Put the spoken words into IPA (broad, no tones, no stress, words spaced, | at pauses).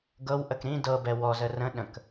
ɡɤwʔək ɾĩ dɤbɛ wɔzə rə̃ ɗə̃k